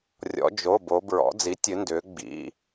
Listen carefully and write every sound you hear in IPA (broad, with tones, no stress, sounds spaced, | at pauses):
rʲ ɔ̰˩˧ d͡ʒ o˩˧˩ b o˩˧ b ɹ ɔ̰˩˧ d͡z i˩˥ tʲ ɨ˩˧ n d ʏː˩˧ ɡ͡b ḭ˩˧˩